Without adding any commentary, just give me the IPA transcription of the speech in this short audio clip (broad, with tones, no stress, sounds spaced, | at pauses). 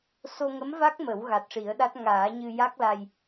s o˧ ŋ ə˧˥ m v a˦˥ k̚ m ə˨˩˦ w ɣ a˨˩ t̚ ʂ i˨˩˦ ə̯ ɗ a˦˥ t̚ ŋ aː˨˩˦ ɲ ɨ˧ j a˦˥ k̚ l a˧ j